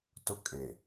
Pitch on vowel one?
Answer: high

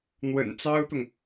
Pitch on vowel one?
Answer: low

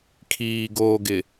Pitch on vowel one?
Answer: low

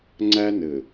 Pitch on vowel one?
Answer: high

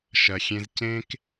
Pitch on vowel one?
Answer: low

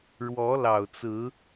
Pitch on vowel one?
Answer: rising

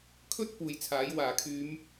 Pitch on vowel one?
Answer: high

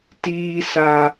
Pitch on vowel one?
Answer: high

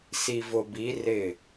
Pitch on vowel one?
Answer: low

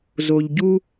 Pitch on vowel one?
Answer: low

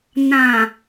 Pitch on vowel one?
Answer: low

